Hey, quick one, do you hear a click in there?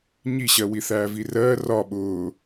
no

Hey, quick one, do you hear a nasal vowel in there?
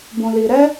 yes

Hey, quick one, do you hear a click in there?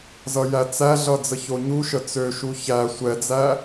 no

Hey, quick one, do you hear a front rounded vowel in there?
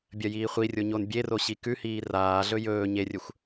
no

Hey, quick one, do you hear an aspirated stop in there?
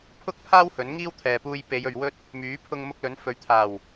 yes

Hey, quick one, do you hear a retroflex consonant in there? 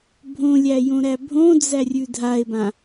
no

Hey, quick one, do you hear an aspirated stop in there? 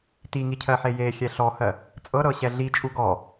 yes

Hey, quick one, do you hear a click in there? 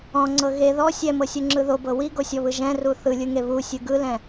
yes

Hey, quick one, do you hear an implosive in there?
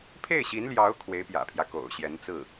no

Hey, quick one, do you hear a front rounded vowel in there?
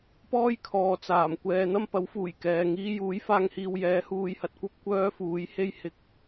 yes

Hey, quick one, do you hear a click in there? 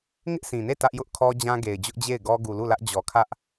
no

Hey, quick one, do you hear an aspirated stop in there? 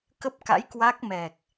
no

